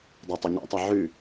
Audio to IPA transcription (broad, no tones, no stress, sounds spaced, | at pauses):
dˤ a tˤ ɪ ɲ a̰ tˤ a ʕ ʉ